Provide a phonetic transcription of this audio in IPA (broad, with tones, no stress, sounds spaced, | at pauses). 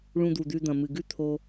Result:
ɭ ũ˨ d̪ u˩ d̪ ʉ˨ d̪ ɐ̃˩ m ɨ˩ ɡ ʉ˦ t̪ʰ o˨